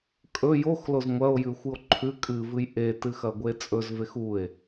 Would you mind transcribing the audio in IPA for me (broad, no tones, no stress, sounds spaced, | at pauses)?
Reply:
kʼ ɵ j o x l o z ŋʷ ɐ o̯ j ʉ xʷ ɨ o̯ ǃʰ ʉ kʼ ɨ v ɨ j ʔ e t ɨ x ɐ ɡʷ e t͡sʼ ɵ z v e x u e̯